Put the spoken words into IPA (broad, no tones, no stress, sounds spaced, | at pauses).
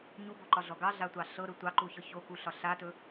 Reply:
ɲ u b o ǃ ɒ ɮ ɔ ɡ ɑ ɮ a tʷ ɑ ɬ ɤ ɾ ɵ tʷ ɑ ǃ u ç ɤ ç o k u ɬ ɒ ɬ a t ɵ